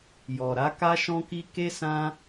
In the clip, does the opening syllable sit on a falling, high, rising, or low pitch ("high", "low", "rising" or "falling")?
low